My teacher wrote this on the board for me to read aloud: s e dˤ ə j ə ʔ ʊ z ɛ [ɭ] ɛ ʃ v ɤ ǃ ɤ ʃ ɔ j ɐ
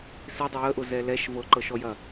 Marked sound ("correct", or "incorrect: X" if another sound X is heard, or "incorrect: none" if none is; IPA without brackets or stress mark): incorrect: l